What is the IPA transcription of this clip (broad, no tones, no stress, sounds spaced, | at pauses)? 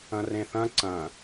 ɐ̃ r ẽ θ ɐ̃ ǀ ɐ̃